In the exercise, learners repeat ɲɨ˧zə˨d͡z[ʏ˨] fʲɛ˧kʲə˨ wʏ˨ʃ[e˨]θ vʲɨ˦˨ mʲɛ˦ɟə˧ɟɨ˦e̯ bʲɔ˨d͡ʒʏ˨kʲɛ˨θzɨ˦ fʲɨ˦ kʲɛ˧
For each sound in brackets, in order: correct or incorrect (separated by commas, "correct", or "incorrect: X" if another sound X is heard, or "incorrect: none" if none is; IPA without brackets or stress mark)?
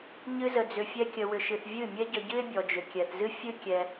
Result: correct, incorrect: ɨ˨